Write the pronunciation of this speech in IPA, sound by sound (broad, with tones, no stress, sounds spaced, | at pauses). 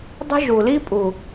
dˤ ə̤˦ ʒ u˨ l i˦ pʼ u˨